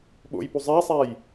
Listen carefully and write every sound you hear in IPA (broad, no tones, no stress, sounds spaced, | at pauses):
ɓ o̰ j p u zˤ æ sˤ æ j